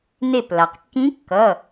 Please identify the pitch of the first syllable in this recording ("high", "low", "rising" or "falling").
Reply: falling